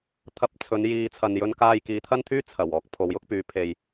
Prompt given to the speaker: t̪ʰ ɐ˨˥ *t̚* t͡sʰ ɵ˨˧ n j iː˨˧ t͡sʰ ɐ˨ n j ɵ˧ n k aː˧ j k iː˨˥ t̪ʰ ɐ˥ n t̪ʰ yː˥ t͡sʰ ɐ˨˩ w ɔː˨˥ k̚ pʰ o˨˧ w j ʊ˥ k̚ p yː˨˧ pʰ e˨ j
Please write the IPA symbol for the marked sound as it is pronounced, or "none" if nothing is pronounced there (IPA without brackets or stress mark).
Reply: p̚